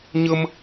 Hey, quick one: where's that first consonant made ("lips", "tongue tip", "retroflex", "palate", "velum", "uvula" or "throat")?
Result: palate